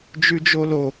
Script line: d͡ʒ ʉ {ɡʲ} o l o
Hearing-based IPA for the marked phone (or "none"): d͡ʒ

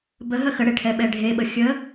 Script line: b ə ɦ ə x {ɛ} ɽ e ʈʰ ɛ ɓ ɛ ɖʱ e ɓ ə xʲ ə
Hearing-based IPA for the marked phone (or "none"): ə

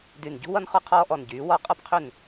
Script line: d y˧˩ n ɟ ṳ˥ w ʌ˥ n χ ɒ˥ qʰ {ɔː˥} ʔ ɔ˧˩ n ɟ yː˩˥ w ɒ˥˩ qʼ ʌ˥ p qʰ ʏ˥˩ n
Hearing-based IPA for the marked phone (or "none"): ɔː˥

